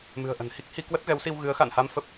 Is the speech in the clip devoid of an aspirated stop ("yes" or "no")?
yes